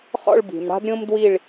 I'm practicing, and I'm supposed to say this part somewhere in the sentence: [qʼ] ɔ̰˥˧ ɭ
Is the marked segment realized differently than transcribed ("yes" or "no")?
yes